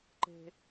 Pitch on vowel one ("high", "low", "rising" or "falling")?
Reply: high